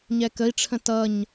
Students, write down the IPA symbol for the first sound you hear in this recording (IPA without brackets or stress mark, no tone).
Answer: ɲ